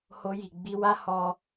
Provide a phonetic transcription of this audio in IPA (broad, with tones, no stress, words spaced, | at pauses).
ho˧ji˨ ɡ͡bi˧wa˦ hɔ˦